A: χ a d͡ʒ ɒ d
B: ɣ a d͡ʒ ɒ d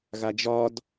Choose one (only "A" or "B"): B